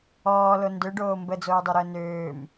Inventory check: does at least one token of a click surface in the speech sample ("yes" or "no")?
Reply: no